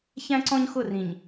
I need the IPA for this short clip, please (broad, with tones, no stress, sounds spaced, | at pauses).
ç æ̃˦ ǀ ɔ̃˦ ɲ x ʊ˦˨ r ĩ˨ ɲ